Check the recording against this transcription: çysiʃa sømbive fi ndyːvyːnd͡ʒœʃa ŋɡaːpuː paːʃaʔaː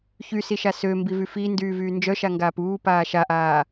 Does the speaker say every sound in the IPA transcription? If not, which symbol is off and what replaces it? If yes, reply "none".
e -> y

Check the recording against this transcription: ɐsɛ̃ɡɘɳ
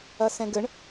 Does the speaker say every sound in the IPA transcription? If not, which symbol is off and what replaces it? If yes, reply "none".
none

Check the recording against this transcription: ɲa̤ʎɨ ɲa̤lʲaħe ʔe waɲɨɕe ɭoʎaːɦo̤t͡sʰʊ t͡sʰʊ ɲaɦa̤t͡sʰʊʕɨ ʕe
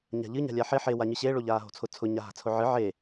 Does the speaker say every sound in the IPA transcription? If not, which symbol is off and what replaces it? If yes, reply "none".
ʔ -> ħ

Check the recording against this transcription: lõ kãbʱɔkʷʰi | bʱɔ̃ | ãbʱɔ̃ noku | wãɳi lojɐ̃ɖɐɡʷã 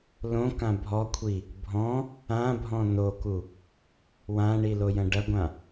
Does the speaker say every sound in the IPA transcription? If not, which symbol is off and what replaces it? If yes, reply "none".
none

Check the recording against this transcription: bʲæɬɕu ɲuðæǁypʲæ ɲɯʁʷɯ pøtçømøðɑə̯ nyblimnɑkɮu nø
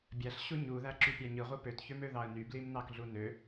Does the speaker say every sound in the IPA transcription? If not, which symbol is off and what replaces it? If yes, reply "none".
none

